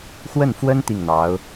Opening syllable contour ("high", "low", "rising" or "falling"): falling